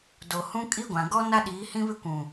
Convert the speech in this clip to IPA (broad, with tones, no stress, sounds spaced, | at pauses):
d o˨ h ũ˦ kʼ i˦ ɡʷ ã˨ ɡ ɔ˦ n a˦ ɗ iː˨˦ h ĩ˦ β ɪ˦ kʷ ũ˨